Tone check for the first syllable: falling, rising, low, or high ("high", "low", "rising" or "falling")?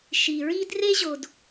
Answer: low